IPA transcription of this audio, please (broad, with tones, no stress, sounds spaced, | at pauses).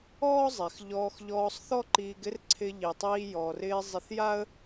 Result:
ɔː˥ zˤ ɛ˩ x ʎ ɔː˧ x ʎ ɔː˧ sˤ θ ɔ˥ ǃ iː˧ ɡ ɪ˥ r ǀʰ ɪ˧ ʎ i˩ tˤ iː˧ j ɔ˩ r ɪː˧ zˤ ɪ˧ θ j a˥ ə̯